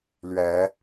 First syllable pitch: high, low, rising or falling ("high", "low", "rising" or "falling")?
rising